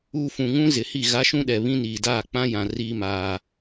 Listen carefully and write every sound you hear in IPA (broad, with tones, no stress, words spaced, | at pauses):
uː˨ fũ˨ŋũ˦zɪ˨hi˦˨ ɣa˦ʃũ˦ɗɛ˨ βĩ˦niː˨daː˦˨ k͡pã˦jã˨ riː˦maː˦